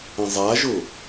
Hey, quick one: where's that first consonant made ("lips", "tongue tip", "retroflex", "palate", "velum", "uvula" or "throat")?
tongue tip